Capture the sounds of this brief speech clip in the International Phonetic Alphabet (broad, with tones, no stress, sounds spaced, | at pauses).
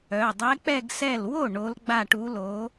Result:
œ˩˧˩ dˤ ɛ˧˥ k͡p ɛ˥˧ ɡ s ɛ˥˩ l w o˥˩ ɳ o˧˥ l ɡ͡b a˥˧ ʈ u˧˥ l o˧˥